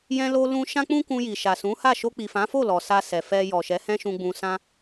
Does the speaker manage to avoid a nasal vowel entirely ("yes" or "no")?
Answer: no